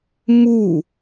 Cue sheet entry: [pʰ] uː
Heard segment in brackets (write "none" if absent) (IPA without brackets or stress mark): m